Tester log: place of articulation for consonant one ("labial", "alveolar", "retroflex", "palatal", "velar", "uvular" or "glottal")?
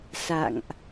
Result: alveolar